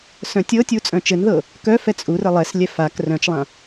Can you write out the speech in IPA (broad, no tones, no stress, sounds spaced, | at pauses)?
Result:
s œ̃ tʲ ɤ tʲ u t͡sʼ œ̃ t͡ʃ ɘ n ð ɤ | k œ f ɛ t͡sʼ u r ɘ lˠ ɛ s lʲ ɛ f a k r œ̃ t͡ʃ lˠ ã